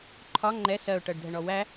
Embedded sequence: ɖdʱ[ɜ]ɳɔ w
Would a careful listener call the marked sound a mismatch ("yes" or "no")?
yes